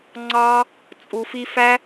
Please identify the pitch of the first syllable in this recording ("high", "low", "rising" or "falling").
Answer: high